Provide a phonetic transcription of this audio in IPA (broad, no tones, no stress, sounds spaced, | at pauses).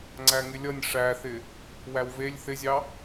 ŋ͡ǀ æ ŋ ɪ lʲ ʌ nʲ ʂ æ θ ɪ | w æ w v e lʲ θ ɪ zʲ ɑ